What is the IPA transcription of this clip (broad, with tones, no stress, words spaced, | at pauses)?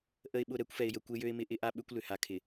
ʔə˨ɪ̯ɓʊ˨ ɾɛ˦kʷfɛ˨ɪ̯jə˨ kʷe˦jø˦ɪ̯mɪ˦ ʔɪ˦ʔa˦ ɓʏ˦kʷ lʏ˨ha˨kʰɪ˨